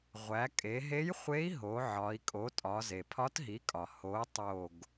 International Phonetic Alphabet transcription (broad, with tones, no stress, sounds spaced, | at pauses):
ʁʷ æ˩˧ kʼ e˩˧ ɦ e˧˥ j χʷ e˧˥ i̯ ɦ o˩˧ ʕ ɒ˩˧ i̯ kʼ o˩˥ tʼ ɒ˩˧ z e˩ pʰ ɒ˧˥ t ɦ i˩˥ kʼ ɒ˩ h o˩˧ tˤ o˦˨ ɡ